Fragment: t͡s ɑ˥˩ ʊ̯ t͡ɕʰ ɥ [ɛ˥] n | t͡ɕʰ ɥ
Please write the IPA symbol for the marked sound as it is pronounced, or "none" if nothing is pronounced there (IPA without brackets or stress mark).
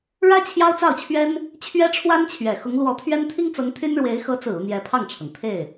ɛ˥